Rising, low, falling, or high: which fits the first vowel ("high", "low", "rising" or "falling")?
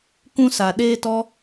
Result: high